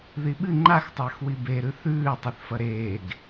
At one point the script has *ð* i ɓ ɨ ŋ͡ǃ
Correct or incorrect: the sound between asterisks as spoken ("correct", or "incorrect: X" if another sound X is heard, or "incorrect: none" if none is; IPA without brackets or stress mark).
correct